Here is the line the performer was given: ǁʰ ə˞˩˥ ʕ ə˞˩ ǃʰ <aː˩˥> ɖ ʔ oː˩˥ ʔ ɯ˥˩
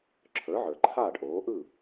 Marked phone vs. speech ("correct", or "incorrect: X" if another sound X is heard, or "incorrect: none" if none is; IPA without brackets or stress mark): incorrect: aː˥˩